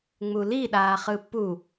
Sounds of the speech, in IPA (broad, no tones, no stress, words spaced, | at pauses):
ŋ͡muliɗaːχɯ pu